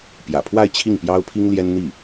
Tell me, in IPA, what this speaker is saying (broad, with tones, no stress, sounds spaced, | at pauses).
p j ä̰˨˩ pʰ w a˥˧ ɪ̯ t͡ɕʰ i˥˩ ŋ p j ɑ˥ ʊ̯ pʰ i˥ ŋ l j ɛ˥ n n̪ i˥˩